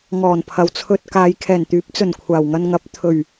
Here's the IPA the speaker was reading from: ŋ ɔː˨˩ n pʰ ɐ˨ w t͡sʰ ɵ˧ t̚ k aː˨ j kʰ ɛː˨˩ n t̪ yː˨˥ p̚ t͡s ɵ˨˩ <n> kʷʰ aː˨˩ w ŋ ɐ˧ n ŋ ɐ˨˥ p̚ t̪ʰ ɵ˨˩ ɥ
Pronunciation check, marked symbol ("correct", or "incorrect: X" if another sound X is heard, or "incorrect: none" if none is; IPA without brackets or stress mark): correct